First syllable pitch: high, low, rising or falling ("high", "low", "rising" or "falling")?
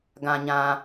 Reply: low